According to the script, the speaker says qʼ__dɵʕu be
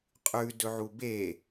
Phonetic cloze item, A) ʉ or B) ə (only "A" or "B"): A